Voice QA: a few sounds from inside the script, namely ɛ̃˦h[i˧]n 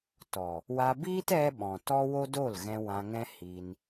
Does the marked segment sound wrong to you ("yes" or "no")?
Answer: no